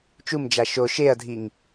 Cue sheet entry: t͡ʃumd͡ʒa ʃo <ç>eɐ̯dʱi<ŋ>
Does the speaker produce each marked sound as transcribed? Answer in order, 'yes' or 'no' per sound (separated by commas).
no, yes